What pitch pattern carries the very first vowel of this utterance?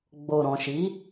low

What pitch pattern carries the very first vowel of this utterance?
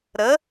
rising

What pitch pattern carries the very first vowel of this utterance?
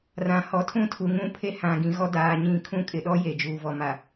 low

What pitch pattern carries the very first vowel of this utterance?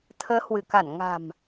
rising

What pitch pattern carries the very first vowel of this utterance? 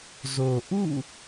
low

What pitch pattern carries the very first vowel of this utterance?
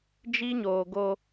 high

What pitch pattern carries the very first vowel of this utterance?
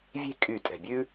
falling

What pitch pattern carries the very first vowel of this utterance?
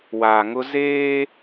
low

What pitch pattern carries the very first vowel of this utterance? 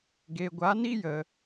low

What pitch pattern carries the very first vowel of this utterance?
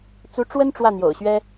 rising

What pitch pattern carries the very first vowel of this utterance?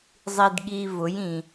low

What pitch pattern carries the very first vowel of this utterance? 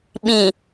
low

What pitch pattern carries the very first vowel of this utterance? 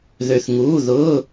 low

